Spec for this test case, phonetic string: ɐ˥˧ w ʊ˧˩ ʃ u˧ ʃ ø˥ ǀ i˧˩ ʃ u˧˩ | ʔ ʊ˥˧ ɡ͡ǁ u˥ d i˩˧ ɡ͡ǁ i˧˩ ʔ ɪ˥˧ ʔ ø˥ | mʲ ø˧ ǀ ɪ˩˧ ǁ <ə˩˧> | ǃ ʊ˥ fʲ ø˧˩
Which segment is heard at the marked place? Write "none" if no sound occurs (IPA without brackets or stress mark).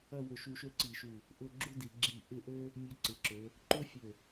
ø˩˧